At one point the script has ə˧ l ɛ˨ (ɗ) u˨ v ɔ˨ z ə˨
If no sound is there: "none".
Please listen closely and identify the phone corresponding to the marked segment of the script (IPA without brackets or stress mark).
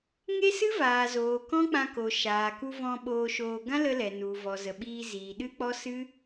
n